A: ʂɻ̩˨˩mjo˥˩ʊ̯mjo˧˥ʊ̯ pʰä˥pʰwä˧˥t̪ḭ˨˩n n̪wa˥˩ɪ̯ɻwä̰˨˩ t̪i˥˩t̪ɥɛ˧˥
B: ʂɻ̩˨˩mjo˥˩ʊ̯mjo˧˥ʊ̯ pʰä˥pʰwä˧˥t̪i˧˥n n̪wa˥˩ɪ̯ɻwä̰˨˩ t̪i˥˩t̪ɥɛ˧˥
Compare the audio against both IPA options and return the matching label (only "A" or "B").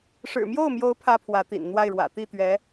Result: A